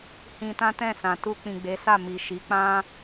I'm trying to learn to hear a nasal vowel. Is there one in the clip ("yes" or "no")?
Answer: yes